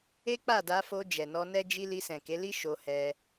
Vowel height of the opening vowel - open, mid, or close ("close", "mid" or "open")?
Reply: mid